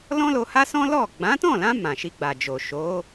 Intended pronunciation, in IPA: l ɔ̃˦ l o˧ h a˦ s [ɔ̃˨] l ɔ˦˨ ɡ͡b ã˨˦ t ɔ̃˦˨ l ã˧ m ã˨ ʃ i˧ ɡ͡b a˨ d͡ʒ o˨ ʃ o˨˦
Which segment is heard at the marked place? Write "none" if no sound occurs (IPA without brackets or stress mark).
ɔ̃˦